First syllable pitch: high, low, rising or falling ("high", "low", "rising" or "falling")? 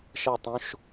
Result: falling